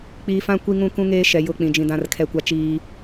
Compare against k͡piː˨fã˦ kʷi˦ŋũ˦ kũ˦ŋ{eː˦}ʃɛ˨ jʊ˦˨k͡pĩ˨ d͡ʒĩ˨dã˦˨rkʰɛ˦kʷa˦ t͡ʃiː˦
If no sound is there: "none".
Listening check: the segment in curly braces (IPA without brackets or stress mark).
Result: eː˦